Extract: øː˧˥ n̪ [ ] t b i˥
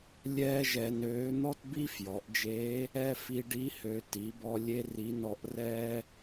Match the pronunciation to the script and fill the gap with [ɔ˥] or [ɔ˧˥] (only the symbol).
ɔ˥